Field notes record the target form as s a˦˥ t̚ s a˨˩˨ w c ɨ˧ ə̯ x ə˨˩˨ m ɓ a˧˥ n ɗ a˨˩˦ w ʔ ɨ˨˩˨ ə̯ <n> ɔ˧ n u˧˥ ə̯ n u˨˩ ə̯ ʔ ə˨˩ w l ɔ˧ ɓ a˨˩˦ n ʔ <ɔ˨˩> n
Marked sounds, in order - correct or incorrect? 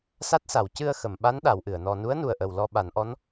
correct, incorrect

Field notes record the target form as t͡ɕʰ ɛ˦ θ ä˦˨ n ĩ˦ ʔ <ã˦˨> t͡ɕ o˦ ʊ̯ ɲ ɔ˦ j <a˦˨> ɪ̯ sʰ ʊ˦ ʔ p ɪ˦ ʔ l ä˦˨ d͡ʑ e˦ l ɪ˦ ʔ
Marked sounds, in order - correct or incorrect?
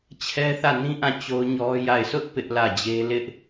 correct, correct

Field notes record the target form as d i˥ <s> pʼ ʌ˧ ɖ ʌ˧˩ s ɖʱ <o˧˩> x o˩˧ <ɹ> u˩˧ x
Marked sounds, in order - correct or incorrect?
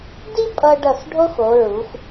incorrect, incorrect, correct

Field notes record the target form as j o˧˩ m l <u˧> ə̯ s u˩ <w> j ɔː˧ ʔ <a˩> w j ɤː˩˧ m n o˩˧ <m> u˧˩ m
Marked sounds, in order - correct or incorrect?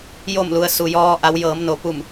incorrect, incorrect, incorrect, incorrect

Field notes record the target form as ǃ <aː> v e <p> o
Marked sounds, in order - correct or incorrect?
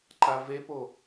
incorrect, correct

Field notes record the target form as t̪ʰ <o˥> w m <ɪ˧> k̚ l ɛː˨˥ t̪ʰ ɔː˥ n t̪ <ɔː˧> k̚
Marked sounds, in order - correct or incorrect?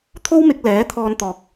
correct, correct, correct

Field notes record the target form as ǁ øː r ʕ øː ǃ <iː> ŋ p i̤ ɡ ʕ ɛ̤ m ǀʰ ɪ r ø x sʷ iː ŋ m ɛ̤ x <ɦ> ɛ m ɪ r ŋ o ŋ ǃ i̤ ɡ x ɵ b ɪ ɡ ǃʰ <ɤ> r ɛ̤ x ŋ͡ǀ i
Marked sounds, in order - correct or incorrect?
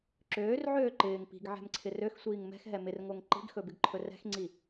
incorrect, correct, incorrect

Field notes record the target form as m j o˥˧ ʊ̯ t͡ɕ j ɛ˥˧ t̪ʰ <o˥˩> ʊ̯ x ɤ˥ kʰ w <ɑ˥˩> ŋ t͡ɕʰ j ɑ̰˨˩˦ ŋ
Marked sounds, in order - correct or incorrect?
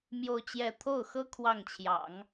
correct, correct

